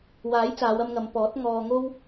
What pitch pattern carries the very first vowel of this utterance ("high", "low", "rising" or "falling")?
rising